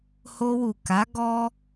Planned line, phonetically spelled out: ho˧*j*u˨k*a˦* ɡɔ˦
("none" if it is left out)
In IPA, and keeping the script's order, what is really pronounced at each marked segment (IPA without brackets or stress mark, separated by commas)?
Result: w, a˨˦